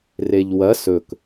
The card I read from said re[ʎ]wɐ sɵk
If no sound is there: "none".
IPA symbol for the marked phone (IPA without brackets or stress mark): ʎ